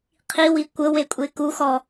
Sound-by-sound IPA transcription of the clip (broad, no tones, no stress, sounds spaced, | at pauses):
qʰ i w i kʷ ə w e kʷʼ e k u x ɔ